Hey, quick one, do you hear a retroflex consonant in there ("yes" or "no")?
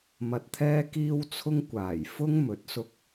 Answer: no